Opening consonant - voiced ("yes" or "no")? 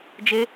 yes